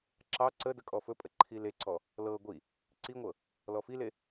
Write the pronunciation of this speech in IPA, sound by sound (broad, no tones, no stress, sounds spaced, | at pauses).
ǁ ɑ ǀ ə d ə kʼ ɔ f ɵ pʼ ə ǃʰ i l e ǀ ɔ | l ɤ ɡʷ i | ǀ i ŋʷ ɤ | l ɔ f i l e